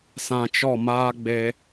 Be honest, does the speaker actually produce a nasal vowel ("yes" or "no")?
yes